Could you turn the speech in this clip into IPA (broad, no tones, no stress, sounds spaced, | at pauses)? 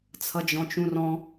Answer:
t͡sʰ ʌ d͡ʒ ɔ̃ t͡ʃ ũ r ɔ̃